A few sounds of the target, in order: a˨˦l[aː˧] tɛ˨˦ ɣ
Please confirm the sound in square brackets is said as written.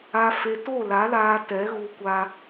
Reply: yes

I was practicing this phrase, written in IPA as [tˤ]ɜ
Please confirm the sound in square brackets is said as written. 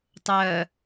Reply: yes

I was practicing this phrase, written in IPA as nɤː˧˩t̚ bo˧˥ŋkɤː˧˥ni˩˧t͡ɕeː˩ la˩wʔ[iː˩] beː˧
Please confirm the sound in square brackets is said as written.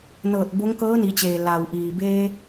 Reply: yes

